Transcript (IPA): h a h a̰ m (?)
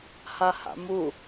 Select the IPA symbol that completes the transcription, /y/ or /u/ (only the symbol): u